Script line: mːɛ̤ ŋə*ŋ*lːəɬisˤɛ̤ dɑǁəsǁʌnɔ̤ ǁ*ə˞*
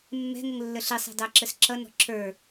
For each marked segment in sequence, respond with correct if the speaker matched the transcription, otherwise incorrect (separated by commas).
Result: correct, correct